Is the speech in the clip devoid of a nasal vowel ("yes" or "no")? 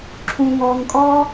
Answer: no